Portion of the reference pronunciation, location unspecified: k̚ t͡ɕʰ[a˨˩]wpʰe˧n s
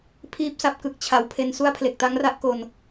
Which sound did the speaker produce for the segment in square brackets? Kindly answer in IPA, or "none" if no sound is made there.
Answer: a˨˩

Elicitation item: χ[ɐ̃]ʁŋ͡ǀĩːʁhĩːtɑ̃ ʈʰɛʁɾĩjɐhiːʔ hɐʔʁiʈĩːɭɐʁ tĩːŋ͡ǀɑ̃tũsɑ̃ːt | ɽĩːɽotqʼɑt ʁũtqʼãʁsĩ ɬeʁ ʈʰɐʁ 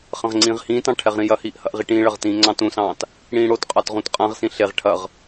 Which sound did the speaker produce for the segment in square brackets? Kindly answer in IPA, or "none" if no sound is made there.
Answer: ɐ̃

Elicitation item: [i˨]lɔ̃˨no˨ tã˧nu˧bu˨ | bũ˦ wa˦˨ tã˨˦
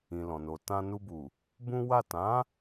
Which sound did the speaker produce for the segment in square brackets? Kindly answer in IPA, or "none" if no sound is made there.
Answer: ĩ˨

